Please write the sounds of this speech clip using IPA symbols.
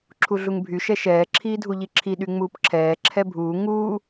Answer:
ǁʰ u ɮ u ŋ bʱ y ʃ ɛ ʃ ɛː ǁʰ iː dʱ u ʎ i ǁʰ i ɗ y ŋ͡m uː p ǁʰ ɛː ǁʰ ɛ bʱ uː ŋ uː

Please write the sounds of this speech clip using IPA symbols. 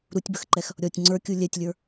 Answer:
ɾ u tʲ b ə x ǃ ɛ x | ɾʲ ɔ tʲ ŋ͡ǀ ə˞ kʲ u lʲ ɛ tʲ lʲ ə˞

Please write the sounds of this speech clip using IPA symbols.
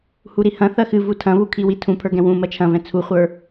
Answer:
h u ɾ i h ɐ̃ θ ɐ x ɨ v u tʰ ɐ̃ β u kʰ i w i tʰ ũ pʰ ə˞ ɡ ɛ̃ w ũ m ɐ t͡ʃʰ ɐ̃ v ɛ̃ t͡sʰ u χʷ ə˞

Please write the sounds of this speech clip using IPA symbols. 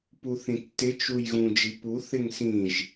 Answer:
p u θ ĩ tː ɪ t͡ʃ u j ɣ ũ d͡ʒ i p u θ ɪ ŋ s ĩ ʒ

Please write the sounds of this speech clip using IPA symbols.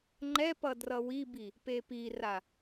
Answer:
ŋ͡ǃ ɛ p ʌ d r ʌ w i b i | p e p i r a

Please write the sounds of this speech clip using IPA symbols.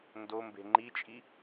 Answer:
n d o m b e̤ ŋ͡ǃ i t͡ʃʼ i

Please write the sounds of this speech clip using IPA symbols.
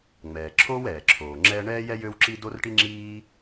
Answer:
ŋ͡m ɛː˩ ǁʰ oː˥ w ɛː˩ ǁʰ oː˩ ŋ͡ǁ ɛː˥ ɳ ɛː˥ j ɛ˥ j ø˥ w ǁ i˥ d o˥ r ʈ i˥ ŋ͡ǁ iː˥

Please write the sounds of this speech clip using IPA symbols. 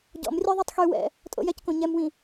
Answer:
ɟ ɔ̰ m rʲ œ ðˤ œ tˤ x y w ɛ̰ | tʼ o̰ j ɛ c k õ ɲ ɛ m w ĩ

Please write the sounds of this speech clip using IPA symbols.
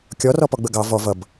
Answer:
kʲ ɔ r ɔ p ɔ ɡ͡b ə ɡ ɑ v ɔ v ʌ b

